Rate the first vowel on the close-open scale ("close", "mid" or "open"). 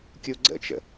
close